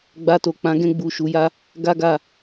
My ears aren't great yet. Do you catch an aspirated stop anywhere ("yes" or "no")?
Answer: no